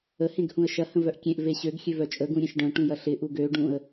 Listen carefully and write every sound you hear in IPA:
ə hẽɡhũə̯ʃɐ hə̃vœʔkʲẽʔ veɕøɡ xʲøvœt͡ʃʼə ɡũɾʲẽʃɖœ̃ ʈũjɐɬɪ ʔuɡø ɖũə̯

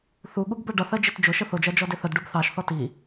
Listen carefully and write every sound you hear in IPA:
θuɠuɡ bɜɖʌθɜ d͡ʒitd͡ʒʊʃə θʊd͡ʒɜ d͡ʒɔdɪθədɖub θɑʃθɔ ti

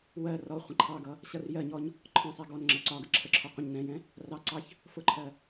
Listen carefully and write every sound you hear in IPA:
wɜ rɔ χʷə̃ǃʰɑɡʌ | ɕʌrjɜɲɔɲ | ǃʰɔ̃sˤɛ ɡɔnŋ͡ǁɜ ǀɒɡə ǁʰəǁʰɔ qʷə̃ɲ nɛ̃jɛ̃ | rɑǀɑç | fʊǃʰɜ

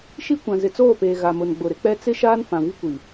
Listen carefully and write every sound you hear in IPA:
ʃi˦kʷã˨ zɪ˨t͡soː˦˨peː˨ ɣa˨mʊ˨n ɡ͡bʊ˨ɾɪ˦k͡pɛ˦ t͡sɪ˦ʃaː˦n fã˨vi˦kʷi˨

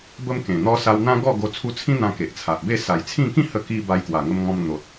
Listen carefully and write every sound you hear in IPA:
bə˦mkẽ˨˩n̪ɔ˦ sa˧wn̪ã˦ɡɔ˥˧ɡo˧ t͡sʰu˧t͡sʰĩ˦ n̪ã˧ke˨ʔt͡sʰa˨ʔbe˥˧ sa˨˩jt͡sʰĩ˥˧ kĩ˥˧hə˧ki˧ ba˧jkwa˨˩ŋə˧mŋɔ̃˧m n̪o˨t̚

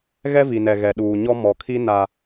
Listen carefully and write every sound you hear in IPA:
ɣɛ˦vi˨nɛ˨ ɣɛ˨ ɗuː˨ɲɔ˦ mɔ˨kʰi˦ na˦

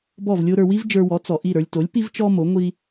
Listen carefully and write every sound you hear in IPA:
bɔ˥˩vlʲo˥ɾə˞˧ wi˥vd͡ʒə˞˧wɔ˩˥ t͡sɔ˩ʔi˥˩ɾə˞˧lʲto˩˥lʲ pi˥vt͡ʃɔ˥mo˩˥ ŋʷi˥

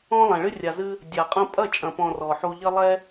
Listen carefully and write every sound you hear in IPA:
ɔ̃˦lˠɛ̃˨ɭɨ˦ rʲa˨zɨ˧ | dʲa˨ qʼɐ̃˧pʼɐ˦˨t͡ʃʼɐ̃˨pɔ̃˨ rɔ˨ħu˧ʎɐ˦lˠɛ˦

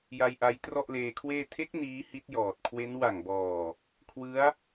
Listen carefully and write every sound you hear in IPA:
ja˧jʔa˧j trɔ˥˩ʔleː˧kʰweː˥˩ tʰe˦˥k̚ niː˦˥hi˦˥t̚jɔː˨˩t̚kʰwe˦˥n wa˨˩ŋbɔː˨˩ | kʰwɯ˦˥a̯

